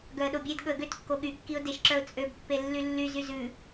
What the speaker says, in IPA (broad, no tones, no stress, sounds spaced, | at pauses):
ɡ œ ə̯ ɗ o bʲ e d ɠ ɵ ə̯ ɡ ø t kː o ɠ y kː i ʊ̯ d e ʃ ǁ œ ʊ̯ t͡sʼ ø b pː e lː y lː y z y z ʉ